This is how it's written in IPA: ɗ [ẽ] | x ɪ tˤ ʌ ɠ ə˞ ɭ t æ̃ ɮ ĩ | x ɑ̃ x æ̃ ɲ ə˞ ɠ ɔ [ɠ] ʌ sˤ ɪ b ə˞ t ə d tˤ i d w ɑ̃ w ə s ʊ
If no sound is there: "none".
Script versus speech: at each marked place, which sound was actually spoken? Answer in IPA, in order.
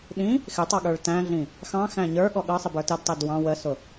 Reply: ĩ, ɠ

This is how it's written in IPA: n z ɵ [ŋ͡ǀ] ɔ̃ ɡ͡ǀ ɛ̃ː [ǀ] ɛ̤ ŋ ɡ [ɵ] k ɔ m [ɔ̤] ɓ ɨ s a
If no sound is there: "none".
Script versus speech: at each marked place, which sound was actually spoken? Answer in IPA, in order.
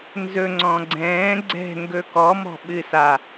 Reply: ŋ͡ǀ, ɡ͡ǀ, ɵ, ɔ̤

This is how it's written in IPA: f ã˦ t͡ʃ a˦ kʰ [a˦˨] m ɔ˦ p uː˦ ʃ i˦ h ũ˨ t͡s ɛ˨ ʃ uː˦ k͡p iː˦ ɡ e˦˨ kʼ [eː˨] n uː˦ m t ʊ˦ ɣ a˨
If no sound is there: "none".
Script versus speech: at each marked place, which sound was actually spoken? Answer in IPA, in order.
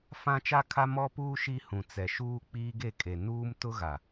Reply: a˦, e˨

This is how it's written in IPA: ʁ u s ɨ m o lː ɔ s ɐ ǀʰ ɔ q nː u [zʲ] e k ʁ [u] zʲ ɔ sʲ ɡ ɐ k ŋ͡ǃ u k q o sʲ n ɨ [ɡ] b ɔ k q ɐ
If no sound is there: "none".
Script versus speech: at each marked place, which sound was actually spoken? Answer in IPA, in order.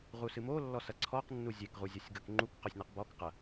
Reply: zʲ, u, q

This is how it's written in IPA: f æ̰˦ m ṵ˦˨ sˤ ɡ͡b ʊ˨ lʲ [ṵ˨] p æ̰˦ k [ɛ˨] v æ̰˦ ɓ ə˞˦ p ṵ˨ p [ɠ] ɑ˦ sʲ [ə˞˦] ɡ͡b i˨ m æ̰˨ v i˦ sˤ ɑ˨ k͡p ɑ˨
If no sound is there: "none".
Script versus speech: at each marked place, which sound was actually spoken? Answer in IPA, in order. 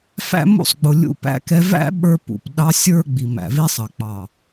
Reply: ṵ˦, ɛ˦, ɗ, ə˞˦

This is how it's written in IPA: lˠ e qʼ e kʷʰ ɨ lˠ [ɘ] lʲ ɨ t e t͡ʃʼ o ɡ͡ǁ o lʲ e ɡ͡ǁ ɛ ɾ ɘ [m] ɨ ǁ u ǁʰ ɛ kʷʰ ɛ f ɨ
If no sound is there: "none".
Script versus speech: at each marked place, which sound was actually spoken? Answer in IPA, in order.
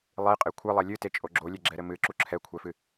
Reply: e, m

